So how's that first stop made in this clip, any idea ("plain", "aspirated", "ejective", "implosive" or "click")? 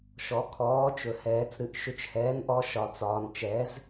aspirated